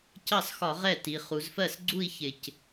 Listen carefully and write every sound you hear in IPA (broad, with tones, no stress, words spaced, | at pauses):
cɑ˥˩sxɒ˧˩˧ ʁɛ˥˩ti˩˧ χu˩˧zfɜ˥˩sɡ͡ǀu˥˧i̯ çɪ˧˩c